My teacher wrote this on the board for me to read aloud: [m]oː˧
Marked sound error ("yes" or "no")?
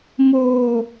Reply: no